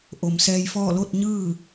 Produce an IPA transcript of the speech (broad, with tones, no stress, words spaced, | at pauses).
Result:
ʔo˩m sɛː˧jfɔː˥˨ lo˥˨t̚ɲɯː˥˨